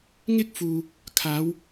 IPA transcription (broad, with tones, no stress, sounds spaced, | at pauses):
ŋ ɪ˥ k̚ f uː˨ | kʰ aː˨˧ w